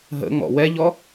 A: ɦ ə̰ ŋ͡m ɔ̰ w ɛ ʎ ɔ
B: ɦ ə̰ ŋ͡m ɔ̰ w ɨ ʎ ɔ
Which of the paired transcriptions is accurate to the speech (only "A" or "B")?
A